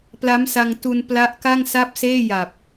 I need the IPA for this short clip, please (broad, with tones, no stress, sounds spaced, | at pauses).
p l a˦˥ m s a˧ ŋ t u˧ n p l a˦˥ ʔ k a˥˩ ŋ s a˥˩ p̚ s eː˥˩ j a˨˩ p̚